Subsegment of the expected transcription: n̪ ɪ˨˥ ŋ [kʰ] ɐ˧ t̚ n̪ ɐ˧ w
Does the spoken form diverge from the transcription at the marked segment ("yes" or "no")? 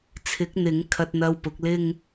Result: no